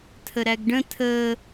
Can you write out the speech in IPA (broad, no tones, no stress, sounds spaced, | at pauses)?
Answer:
tʰ ə ɾ æ ɡ ɖ ə̃ tʰ ə